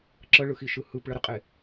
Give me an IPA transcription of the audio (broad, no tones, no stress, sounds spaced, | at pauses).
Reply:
ǁ ə ɭ ɯ x i ʃ ɯ h ɯ p ɭ ə ɾ ɯ qʼ e